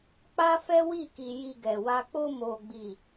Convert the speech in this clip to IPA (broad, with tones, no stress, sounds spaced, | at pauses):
k͡p a˦ f ɛ˦ w i˦˨ k i˨ j i˧ ɡ ɛ˨ w a˧ k͡p o˧ m o˨ ɡ͡b i˨